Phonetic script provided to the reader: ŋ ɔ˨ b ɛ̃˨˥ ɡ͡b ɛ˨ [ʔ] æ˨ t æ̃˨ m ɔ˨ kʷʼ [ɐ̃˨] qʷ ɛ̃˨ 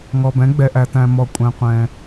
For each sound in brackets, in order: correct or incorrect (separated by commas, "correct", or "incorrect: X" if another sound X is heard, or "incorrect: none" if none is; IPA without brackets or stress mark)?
correct, incorrect: æ̃˨